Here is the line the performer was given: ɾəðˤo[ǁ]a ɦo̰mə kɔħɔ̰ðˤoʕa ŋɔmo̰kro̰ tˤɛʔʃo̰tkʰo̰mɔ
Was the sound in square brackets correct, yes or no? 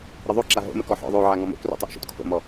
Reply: yes